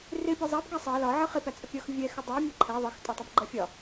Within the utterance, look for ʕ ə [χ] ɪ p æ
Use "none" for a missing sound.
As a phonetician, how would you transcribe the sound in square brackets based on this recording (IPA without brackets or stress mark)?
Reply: χ